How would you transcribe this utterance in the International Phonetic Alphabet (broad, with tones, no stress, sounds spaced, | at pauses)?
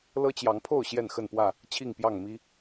l ɤ˦ t͡ɕ j ɑ˨˦ ŋ pʰ o˥˨ ʊ̯ ɕ j ɛ˥˨ n x ə˥˨ n p w ä˥˨ | t͡ɕʰ i˥˨ ŋ p j ɑ˥˨ ŋ m i˦